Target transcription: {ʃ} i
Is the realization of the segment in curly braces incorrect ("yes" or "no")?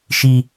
no